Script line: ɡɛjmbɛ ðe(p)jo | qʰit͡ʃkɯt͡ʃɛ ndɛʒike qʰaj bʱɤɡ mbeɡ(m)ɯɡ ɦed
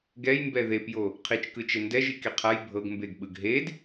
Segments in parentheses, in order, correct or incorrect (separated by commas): correct, incorrect